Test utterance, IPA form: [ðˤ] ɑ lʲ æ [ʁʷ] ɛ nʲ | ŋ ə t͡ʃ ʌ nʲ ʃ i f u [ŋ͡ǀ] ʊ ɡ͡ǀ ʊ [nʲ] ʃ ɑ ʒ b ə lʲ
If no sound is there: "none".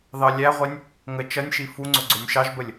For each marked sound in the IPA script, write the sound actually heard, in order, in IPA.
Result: ð, ʁʷ, ŋ͡ǀ, nʲ

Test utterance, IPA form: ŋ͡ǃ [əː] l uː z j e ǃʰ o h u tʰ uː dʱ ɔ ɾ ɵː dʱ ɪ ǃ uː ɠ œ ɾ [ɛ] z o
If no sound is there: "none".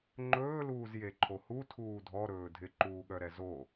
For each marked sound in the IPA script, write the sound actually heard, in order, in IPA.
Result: ɵː, ɛ

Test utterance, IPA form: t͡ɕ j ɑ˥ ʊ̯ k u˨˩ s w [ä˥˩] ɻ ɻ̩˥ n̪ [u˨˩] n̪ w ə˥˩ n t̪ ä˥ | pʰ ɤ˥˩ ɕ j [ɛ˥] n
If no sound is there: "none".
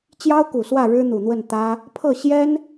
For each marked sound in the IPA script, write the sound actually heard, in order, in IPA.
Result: ä˥˩, u˨˩, ɛ˥

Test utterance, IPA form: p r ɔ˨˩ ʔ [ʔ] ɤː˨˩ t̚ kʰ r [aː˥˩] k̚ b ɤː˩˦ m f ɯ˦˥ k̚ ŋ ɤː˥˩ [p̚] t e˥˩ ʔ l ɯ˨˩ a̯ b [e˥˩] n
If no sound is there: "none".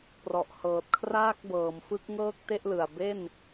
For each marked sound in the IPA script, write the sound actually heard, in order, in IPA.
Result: h, aː˥˩, k̚, e˥˩

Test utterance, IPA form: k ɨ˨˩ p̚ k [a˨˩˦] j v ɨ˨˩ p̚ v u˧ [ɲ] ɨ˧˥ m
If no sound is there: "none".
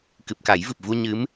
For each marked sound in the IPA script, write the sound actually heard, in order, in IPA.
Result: a˨˩˦, ɲ

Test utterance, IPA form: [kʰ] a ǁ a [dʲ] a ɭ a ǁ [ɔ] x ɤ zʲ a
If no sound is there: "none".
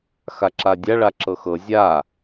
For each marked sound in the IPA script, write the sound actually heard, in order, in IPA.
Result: x, dʲ, ɤ

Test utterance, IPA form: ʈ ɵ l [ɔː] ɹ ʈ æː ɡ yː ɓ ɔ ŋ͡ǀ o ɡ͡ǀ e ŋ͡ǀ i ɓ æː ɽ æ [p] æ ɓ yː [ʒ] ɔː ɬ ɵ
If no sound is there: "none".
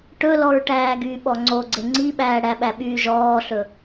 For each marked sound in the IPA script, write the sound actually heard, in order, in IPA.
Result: ɔ, ɓ, ʒ

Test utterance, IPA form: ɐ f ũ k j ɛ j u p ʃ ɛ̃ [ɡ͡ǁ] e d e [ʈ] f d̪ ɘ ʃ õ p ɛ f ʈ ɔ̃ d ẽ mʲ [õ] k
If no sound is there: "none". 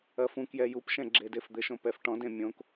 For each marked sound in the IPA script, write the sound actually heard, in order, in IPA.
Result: ɡ͡ǁ, none, õ

